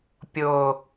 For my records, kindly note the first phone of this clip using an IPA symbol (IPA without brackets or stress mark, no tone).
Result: pʲ